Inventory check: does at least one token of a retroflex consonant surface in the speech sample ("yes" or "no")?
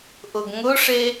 yes